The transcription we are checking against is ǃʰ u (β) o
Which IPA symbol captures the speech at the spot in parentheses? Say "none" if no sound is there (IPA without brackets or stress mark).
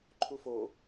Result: f